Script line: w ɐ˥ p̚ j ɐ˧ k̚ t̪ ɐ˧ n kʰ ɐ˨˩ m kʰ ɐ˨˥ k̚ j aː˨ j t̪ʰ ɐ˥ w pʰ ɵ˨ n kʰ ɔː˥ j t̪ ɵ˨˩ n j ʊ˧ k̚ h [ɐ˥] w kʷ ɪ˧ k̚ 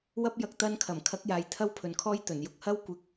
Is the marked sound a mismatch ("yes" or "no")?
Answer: no